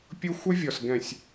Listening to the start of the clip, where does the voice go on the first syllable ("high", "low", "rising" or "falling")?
high